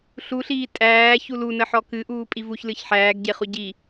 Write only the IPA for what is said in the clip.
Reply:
ɬ u ɬ iː tʼ æː ç u l u n ə ħ ɔ k ɨ ʔ uː pʼ i v u ç l ɨ ç ħ æː ɡ ɟ e χ u ɟ i

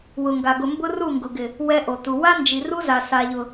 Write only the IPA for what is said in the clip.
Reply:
w ʊ˨ ŋ ɡ a˨ ɡ ʊ˨ m b ʊ˦ r u˦˨ ŋ ɡ ʊ˨ ɡ ɪ˨ | w ɛ˦ ʔ o˨ t u˨ w a˦ n d͡ʒ i˨ r u˦ z a˨ s a˨ ʎ ʊ˨

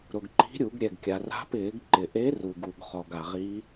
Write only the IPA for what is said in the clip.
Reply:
ɾ ʊ˩ ɡ ǃ i̤˧˥ ɾʲ u˧˩˧ ɡ ɾʲ ɛ˩ ɡ kʲ a˩ r a̤˧˥ p ɪː˧˩˧ ɡ ǃ ɪ˩ ʔ e˧˥ r u˩ ɡ u˩ ɡ χ ɔ˩ ɡ a˩ ʁ i˧˥

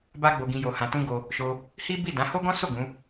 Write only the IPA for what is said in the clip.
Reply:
b a˦ ɡ͡b o˧ ɡ ĩ˧ j o˧ h ã˧ t ũ˦ ɡ o˧ | ʃ o˧ | h i˦ b i˦˨ d ã˨˦ h o˦ ɡ ɔ̃˦ s o˦˨ ɡ ũ˨˦

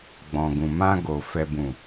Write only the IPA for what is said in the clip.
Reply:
ɡ͡b ɔ̃˨ ɡ ũ˨ m ã˧ ɡ o˨ f ɛ˨ b ũ˨

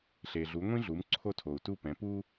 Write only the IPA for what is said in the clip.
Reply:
ɬ e˩ ɮ u˩˥ ŋʷ ĩ˥ ɮ u˩˥ m ǀʰ o˥˨ tʰ o˩ u̯ t u˥˨ p ɛ̃˩˥ p u˥

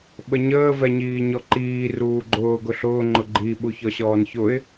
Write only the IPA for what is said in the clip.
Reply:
ɓ ə ɲ əː v ɛ ɲ iː ɲ ɔ ǃ iː r uː ɡ͡ǃ ʊː ɡ ʊ ɬ ʊː ŋ͡ǃ ʊ ɡ͡ǃ i ɓ u ç ɔ ɕ ɔː n ç ʊ ɪ̯

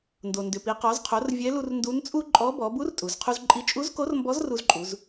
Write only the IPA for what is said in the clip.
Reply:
n d o˩ n d ʏ˩ p i˩˧ q ɔ˩˧ z qʰ o˩˧ r vʲ ɛ˧˥ l u˧ r n d u˧˥ n t͡sʼ u˥ ǃʼ ɔ˧˥ b ɔ˩˧ b u˧˥ r tʼ u˩ z qʰ u˧ z ǃʼ i˧˥ t͡ʃʼ u˧˥ z k o˧˥ r m b ɔ˧˥ z r u˧ z ǃʼ u˩˧ z

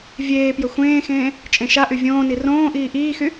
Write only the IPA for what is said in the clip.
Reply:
vʲ eː p j ə xʷ ẽː x ẽː | t͡ʃʼ ẽ ʃ a ʔ y vʲ õː n i r õː ʔ iː ʔ iː x y

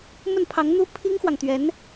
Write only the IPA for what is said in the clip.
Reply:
m ə˥˩ n pʰ ɑ˧˥ ŋ n̪ u˥ pʰ i˥ ŋ x w ɑ˨ ŋ t̪ ɥ ɛ˧˥ n

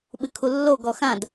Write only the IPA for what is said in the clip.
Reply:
ɓ ɨ kʰ u lː o ɡ ɔ x ã d

